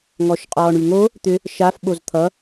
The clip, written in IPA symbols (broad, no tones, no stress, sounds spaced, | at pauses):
ŋ ɔ ʃ qʼ ɔː ɳ y ŋ o | t̪ ʏ | ʃ a f ɓ o z t̪ʰ ʌ